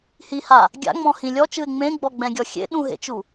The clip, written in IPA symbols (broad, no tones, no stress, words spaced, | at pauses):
hiha | ɡʲa̰ŋ͡mɔ̃hĩ lʲɔt͡ʃɯɪ̯ ŋ͡mẽɡ͡bɔɡ͡bɛ̃ɡʲɔ xʲḛ ɗũɦḛt͡ʃu